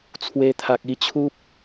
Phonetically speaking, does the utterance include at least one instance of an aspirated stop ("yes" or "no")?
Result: yes